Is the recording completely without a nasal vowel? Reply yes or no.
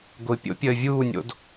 yes